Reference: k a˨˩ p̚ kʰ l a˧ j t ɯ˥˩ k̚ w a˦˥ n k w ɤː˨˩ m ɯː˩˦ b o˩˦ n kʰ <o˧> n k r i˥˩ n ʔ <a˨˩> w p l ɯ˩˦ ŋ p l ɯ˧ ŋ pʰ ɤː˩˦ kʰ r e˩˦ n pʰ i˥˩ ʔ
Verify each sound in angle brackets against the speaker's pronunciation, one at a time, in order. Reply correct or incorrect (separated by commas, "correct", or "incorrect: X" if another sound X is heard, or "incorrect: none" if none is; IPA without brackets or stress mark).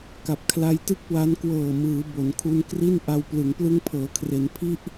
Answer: incorrect: u˧, incorrect: a˧